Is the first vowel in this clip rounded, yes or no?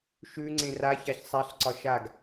yes